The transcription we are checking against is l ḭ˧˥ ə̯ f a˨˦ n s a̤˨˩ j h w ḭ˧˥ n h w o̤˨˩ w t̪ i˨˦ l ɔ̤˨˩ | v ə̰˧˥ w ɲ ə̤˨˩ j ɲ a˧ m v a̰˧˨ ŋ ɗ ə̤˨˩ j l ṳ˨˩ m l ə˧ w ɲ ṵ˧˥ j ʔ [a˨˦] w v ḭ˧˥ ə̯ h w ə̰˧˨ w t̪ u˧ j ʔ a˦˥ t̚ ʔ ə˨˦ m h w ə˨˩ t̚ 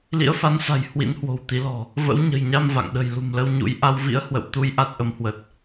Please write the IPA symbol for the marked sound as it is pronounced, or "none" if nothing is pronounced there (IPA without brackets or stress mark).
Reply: a˧